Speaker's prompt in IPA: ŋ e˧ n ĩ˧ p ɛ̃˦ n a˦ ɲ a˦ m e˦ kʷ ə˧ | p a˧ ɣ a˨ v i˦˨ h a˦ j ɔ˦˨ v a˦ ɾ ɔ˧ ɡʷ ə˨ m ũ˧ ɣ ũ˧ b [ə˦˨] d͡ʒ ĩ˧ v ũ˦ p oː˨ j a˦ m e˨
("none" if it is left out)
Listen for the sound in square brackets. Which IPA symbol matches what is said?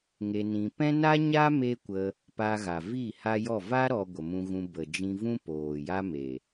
ə˨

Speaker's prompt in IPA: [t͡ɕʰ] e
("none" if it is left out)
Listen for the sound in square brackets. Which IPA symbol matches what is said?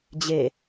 d͡ʑ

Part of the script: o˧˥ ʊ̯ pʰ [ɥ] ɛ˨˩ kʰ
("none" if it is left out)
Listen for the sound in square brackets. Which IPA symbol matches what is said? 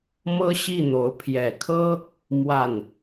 j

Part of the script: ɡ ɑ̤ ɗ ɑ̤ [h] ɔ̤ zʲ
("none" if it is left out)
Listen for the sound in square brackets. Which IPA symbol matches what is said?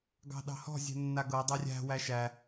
h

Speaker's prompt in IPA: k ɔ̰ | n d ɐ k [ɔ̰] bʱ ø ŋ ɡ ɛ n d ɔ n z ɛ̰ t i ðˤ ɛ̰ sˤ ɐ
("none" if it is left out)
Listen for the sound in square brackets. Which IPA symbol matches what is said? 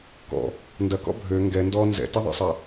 ɔ̰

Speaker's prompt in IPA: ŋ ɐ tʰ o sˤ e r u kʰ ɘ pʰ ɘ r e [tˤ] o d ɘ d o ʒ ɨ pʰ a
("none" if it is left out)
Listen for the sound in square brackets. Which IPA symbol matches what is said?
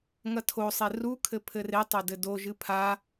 tˤ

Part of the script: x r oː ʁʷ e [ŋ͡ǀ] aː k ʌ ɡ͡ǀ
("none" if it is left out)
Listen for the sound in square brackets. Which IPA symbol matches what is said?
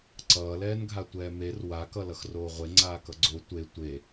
ŋ͡ǀ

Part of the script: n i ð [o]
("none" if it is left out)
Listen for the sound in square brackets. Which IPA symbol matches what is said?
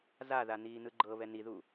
u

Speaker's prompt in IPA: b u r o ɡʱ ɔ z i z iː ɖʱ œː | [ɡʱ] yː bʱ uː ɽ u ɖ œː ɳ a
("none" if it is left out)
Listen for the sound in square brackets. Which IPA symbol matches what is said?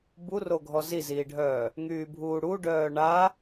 ŋ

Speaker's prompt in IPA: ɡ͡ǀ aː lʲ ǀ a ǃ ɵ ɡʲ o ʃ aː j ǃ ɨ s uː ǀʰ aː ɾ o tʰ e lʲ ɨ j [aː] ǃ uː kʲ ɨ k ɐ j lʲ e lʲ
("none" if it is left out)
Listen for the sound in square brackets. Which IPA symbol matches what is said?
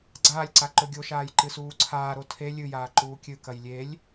aː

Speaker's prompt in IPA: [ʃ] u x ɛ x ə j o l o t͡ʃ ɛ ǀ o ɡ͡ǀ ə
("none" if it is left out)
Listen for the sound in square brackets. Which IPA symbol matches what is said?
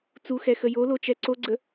t͡s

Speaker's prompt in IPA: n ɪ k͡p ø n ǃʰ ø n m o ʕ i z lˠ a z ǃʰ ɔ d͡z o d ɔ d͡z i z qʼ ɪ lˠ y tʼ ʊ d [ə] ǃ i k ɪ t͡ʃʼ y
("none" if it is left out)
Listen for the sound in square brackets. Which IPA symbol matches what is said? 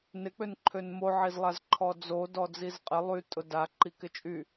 a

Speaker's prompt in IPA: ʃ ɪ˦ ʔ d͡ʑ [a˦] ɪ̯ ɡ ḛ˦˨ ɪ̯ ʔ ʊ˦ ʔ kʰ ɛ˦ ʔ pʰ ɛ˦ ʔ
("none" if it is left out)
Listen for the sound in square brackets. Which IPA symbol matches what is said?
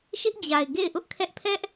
a˨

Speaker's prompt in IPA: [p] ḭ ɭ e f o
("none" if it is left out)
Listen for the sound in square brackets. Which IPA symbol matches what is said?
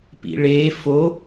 p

